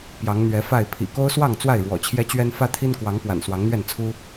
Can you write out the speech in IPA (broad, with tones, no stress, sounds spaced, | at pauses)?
p j ɑ˨˦ ŋ n̪ ɥ ɛ˨˦ f a˥˨ ɪ̯ pʰ ḭ˨˩ k o˦ ʊ̯ s w ɑ˥˨ ŋ t͡s w a˥˨ ɪ̯ ɻ w ɔ̰˨˩ t͡ɕʰ j ɛ˦ t͡ɕ ɥ ɛ˦ n f ä˦ t̪ʰ i˦ n k w ɑ˨˦ ŋ p w a̰˨˩ n s w ɑ˨˦ ŋ n̪ ɥ ɛ˥˨ n t͡sʰ u˦